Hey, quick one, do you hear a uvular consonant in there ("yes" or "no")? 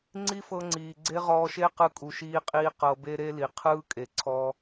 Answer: yes